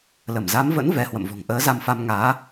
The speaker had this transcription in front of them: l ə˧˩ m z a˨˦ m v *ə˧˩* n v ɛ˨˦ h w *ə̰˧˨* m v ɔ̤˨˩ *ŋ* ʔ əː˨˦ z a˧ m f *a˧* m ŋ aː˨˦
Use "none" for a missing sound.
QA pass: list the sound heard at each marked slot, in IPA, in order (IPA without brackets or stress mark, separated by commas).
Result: ə̰˧˥, ə̰˧˨, ŋ, a˧